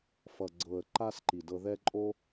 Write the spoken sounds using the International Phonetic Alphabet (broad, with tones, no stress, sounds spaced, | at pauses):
f ʌ˨ ɡ͡ǀ ɤ˨ ə̯ ǃ a˦ s ǃ i˨ d ɤ˧ ð ɛ˦ ǃʼ o˦